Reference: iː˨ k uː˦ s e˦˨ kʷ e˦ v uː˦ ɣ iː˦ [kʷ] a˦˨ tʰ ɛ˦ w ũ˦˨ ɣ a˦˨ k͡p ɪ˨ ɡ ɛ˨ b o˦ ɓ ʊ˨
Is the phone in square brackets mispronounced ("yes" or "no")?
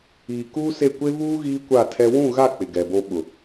no